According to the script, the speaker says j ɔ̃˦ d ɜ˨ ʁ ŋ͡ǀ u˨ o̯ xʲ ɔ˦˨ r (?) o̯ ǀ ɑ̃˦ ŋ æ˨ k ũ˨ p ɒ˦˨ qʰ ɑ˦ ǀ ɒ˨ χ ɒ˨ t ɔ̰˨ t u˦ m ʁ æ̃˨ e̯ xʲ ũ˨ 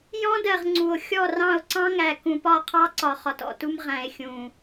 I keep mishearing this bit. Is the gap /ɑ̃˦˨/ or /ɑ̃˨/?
ɑ̃˦˨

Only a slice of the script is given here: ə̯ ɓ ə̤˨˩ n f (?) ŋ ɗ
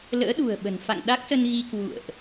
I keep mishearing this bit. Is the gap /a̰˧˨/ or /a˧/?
a̰˧˨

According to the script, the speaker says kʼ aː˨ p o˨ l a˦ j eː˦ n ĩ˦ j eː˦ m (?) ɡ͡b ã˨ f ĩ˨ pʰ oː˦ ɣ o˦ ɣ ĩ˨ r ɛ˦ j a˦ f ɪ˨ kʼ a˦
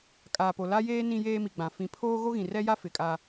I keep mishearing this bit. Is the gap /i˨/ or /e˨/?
i˨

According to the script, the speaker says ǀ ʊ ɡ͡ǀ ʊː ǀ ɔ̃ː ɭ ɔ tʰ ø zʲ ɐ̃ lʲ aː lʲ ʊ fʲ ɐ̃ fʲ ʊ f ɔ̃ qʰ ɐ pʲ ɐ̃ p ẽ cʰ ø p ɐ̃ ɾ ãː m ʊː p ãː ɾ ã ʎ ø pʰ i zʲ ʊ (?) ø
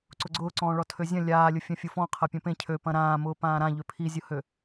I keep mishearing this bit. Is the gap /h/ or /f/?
h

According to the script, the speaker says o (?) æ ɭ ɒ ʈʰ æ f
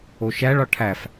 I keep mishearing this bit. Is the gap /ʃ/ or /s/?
ʃ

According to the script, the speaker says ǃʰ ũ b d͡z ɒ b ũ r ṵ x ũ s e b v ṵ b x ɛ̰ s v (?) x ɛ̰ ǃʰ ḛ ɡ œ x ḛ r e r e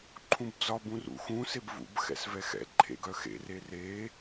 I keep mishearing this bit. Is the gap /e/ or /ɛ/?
ɛ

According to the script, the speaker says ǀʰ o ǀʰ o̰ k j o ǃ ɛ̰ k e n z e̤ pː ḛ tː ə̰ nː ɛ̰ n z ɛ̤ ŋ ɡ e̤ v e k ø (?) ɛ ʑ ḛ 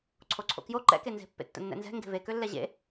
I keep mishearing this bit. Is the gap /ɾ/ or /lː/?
lː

